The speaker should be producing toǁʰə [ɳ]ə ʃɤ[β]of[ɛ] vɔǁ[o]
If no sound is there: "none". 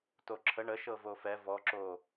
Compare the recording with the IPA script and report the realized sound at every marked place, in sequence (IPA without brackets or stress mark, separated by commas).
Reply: ɳ, v, ɛ, o